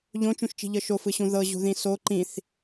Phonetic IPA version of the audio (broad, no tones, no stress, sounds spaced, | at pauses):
ʎ õ t͡ʃ ũ ʃ t͡ʃ i̤ ʎ ɤ ʃ o f ɯ ɕ ũ ð ɤ ʑ ṳ ð ĩ s o ǃ ĩ θ